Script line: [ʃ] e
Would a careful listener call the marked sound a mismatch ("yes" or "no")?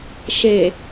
no